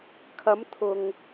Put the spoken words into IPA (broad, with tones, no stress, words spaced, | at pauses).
kʰɐ˨˧mt̪ʰʊ˨ŋ